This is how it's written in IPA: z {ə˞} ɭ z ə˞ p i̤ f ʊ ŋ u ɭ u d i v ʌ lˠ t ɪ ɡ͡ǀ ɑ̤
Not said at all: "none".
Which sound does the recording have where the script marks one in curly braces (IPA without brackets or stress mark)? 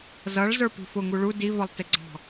ʌ